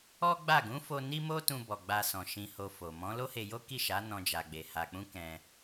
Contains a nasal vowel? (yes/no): yes